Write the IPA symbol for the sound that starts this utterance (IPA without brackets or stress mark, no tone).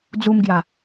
d͡z